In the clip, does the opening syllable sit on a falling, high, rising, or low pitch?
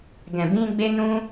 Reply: low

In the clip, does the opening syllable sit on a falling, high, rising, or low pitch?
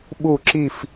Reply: falling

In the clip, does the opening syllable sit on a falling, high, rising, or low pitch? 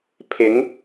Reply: rising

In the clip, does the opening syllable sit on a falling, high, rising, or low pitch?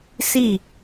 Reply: falling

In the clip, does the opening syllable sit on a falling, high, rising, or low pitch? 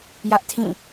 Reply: high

